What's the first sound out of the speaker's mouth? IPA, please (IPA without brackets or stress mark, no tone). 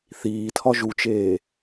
θ